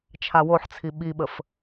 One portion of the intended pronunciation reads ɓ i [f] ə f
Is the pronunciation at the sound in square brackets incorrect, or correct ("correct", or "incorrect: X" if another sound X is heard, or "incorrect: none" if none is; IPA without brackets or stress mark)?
incorrect: ɓ